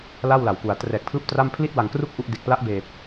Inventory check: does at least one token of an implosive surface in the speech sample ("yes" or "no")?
no